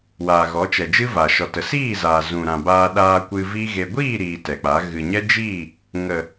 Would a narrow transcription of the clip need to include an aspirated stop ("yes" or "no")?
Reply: no